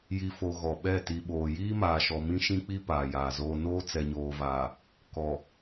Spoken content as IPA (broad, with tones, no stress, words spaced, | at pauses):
ji˨fo˨ ɣɔ˨ɓɛ˦˨ ti˨ɓoː˨ jiː˦maː˨ʃɔ˨ mĩ˦ʃĩ˦k͡pi˦ paː˨jaː˨zoː˦ noː˦t͡sɛ˨ɲoː˨vaː˨ | kɔ˨